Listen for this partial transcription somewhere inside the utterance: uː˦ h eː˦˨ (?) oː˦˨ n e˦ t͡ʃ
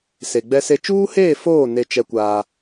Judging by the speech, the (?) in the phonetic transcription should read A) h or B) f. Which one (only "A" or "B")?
B